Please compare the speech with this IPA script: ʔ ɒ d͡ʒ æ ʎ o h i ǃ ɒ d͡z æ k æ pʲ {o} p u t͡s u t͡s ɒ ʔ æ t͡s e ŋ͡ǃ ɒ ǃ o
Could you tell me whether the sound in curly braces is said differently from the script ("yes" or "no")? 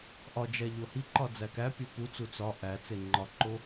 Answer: no